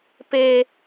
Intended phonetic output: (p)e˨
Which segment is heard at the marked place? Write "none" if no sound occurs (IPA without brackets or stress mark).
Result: p